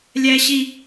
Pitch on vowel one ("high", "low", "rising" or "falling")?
high